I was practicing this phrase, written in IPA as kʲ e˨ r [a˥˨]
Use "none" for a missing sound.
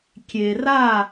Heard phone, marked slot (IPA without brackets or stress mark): a˥˨